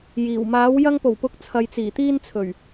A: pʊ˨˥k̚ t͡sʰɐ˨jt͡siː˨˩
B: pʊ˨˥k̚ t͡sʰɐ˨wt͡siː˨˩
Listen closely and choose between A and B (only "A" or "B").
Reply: A